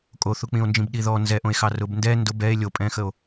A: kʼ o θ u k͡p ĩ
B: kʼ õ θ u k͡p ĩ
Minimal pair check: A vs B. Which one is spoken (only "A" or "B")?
A